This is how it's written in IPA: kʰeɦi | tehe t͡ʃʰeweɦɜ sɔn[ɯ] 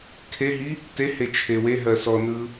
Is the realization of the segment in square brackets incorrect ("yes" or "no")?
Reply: no